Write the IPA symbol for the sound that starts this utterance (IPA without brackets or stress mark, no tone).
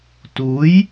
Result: t